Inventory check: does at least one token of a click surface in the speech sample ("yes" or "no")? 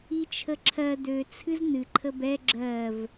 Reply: yes